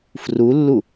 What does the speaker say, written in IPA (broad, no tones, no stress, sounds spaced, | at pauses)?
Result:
f r u lː u